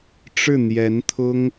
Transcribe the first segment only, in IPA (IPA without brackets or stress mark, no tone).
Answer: ʈ͡ʂ